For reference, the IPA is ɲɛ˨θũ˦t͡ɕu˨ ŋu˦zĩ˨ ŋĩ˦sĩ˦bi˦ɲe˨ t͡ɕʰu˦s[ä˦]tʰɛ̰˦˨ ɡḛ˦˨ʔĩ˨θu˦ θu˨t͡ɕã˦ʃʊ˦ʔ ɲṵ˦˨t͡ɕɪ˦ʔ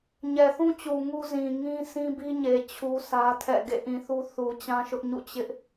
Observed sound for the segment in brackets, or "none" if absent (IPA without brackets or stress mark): ä˦